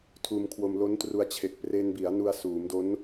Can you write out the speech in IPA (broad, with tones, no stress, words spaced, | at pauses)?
tʰuː˧mkʰwo˧mlo˦˥ntru˧a̯ t͡ɕʰe˨˩k̚ pre˧nbi˩˦a̯ nu˧a̯suː˩˦mdo˦˥n